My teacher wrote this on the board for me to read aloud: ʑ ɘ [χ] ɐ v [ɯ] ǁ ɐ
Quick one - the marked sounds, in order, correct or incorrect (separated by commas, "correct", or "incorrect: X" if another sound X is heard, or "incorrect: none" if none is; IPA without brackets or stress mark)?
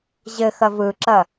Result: incorrect: x, correct